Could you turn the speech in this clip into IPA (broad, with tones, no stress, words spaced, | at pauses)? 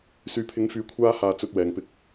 syː˨˥pʰɪ˨˧ŋfyː˨˥ kʷʰaː˥ haː˧t͡sɵ˧t̚wɛː˨ŋpɪ˧k̚